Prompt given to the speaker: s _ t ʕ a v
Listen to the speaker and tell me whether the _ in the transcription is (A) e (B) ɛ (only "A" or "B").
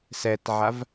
B